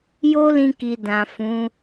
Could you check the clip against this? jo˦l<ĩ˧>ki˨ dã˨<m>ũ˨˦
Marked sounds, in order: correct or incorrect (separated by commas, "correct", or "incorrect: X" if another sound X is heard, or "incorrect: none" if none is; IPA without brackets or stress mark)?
correct, incorrect: f